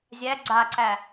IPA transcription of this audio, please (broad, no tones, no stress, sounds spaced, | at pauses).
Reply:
zʲ æ ɡ͡ǀ a ǀ æ